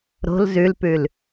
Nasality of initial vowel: oral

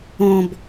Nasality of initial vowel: nasal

